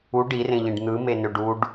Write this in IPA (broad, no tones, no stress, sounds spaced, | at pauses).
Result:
u ɖ i r ẽ ʎ ẽ ɖ n̪ ɯ m e n ø ɖ u ɖ